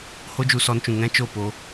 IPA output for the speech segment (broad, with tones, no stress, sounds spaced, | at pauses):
h o˦ d͡ʒ u˧ s ɔ˧ n t͡ʃ ũ˨ ŋ ɛ̃˦ t͡ʃ o˦˨ p o˧